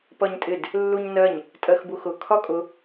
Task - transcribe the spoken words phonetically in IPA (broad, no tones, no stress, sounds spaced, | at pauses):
p ʌ ɲ tʼ ɪ d | lː u ɲ n ɜ ɲ | tʼ ɜ x b u x ʊ kʰ ɒ kʼ ʊ